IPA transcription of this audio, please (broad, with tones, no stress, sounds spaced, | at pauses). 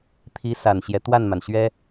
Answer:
t̪ʰ i˧˥ s a˨˩ n ɕ j ɛ˦ t̪ w a˥˩ n m a˩ n ɕ ɥ ɛ˥